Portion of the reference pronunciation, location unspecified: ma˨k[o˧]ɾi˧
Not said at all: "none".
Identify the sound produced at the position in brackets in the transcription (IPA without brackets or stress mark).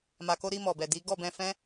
o˧